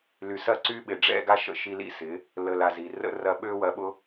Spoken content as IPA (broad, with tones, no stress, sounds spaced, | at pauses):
l y˨ s ɐ˦˨ ǀ y˦ ɓ ɪ˨ ɖ͡ʐ ɛ̰˦ ɡ a˦ ʃ ə̰˦˨ ʃ i˧ l ḭ˦ s ɪ˨˦ | l ə˨ l a˨ z i˨ r ə̰˧ r ɐ˧ ɓ ø˦ w ɐ˧ ɓ ʊ˦